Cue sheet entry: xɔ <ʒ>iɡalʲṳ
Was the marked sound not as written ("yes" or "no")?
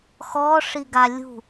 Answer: yes